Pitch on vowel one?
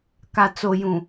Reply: low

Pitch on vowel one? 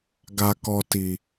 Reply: low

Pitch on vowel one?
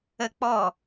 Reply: high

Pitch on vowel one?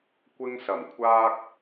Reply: high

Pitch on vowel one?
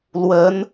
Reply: rising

